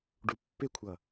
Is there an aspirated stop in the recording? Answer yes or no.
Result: yes